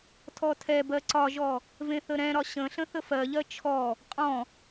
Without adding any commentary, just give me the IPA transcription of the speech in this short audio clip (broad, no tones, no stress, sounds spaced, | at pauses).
tʰ ɔ tʰ ɛ b ɜ ǀ ɒ ʒ ɔ | v ẽ θ ə ɾ ɛ̃ ɾ ɒ ɕ ə̃ ɬ ə̃ θ ə f ɜ ʎ ɜ t͡ʃʰ ɔ | qʼ ɔ̃